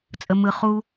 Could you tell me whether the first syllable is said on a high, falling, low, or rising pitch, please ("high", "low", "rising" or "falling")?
high